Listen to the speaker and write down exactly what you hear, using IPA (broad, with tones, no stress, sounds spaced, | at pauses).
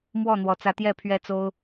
m w ɔ˥˨ n̪ w ɔ˨˦ t͡s ä˦ t̪ j ɛ˥˨ pʰ ɥ ɛ˦ t͡s o˦ ʊ̯